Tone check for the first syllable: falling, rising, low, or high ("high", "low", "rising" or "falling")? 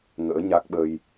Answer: rising